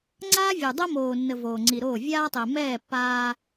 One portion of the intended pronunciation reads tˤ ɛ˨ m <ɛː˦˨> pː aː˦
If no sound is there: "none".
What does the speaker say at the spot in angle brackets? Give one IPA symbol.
ɛː˦˨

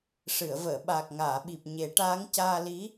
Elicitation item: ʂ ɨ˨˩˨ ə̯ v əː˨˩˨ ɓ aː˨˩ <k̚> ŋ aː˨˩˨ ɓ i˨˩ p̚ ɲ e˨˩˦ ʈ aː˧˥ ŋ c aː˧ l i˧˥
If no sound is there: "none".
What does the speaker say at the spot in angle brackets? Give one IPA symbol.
k̚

